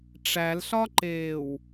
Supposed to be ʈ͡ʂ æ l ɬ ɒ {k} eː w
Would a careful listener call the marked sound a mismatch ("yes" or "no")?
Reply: yes